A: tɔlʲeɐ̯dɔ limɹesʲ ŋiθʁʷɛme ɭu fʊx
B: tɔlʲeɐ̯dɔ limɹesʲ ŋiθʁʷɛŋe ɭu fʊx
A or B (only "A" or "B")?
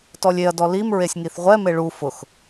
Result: A